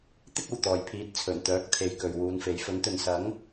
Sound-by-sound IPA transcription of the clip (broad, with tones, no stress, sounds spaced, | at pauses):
t̪ ɪ˥ k̚ ɐ˨˩ w t̪ ɔː˨˩ j pʰ iː˨˥ t̚ t͡sʰ ɵ˨˩ n t̪ œː˨˥ k̚ t̪ʰ e˨ j k ɵ˨ ɥ w uː˨˧ n f e˨˧ j f ɵ˨˥ n t̪ ɵ˨ n s ɐ˨˥ ŋ